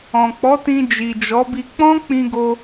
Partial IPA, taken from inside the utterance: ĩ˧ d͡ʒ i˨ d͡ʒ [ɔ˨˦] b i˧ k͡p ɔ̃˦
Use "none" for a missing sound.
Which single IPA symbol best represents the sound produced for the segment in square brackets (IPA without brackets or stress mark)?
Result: ɔ˨˦